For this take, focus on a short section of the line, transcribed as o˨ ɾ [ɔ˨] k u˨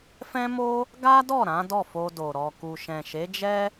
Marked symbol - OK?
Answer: yes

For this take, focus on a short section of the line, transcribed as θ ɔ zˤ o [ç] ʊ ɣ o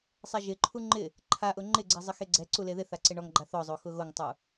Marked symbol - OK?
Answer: no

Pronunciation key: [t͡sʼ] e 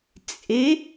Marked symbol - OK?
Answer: yes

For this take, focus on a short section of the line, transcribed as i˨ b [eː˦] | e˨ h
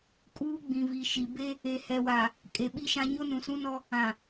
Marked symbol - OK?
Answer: no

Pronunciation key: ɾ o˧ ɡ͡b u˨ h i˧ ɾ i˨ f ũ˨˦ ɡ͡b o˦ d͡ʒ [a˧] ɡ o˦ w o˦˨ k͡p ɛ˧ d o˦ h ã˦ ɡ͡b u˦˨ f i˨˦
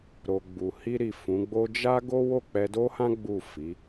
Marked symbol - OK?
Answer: no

